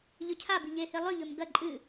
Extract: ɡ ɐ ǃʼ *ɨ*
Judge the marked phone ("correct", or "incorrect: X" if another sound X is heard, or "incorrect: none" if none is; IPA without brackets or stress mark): correct